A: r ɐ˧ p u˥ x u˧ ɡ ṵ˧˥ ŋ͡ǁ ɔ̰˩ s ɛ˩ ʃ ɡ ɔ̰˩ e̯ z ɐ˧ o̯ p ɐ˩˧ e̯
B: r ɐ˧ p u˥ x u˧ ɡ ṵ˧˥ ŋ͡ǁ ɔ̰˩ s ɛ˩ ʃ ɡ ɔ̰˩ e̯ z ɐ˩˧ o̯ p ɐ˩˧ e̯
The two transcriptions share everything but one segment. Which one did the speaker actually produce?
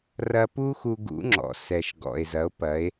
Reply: B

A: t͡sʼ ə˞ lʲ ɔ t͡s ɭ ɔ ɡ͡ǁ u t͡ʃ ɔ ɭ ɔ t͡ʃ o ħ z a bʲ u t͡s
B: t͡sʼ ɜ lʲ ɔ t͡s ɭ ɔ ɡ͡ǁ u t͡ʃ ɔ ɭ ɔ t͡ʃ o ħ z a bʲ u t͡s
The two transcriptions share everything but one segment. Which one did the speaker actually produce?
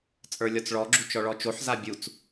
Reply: A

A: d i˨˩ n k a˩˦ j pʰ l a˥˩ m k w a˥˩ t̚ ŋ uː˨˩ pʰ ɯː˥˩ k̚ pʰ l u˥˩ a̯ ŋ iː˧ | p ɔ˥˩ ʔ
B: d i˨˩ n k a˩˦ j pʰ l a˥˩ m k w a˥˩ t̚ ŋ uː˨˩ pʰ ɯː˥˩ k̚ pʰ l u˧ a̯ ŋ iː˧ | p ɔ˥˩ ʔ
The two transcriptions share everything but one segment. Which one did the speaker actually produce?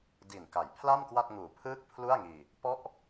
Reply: A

